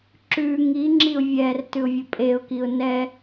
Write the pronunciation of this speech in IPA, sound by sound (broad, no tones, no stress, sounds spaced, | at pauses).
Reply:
ǁ ʉ ŋ i ŋ͡ǁ i ʊ̯ vʲ ɛ r t ʉ ʊ̯ vʲ ɵ pʼ e ʊ̯ k i ʊ̯ n ɛ